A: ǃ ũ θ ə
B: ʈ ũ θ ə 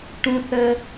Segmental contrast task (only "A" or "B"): B